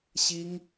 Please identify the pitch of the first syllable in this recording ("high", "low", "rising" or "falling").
high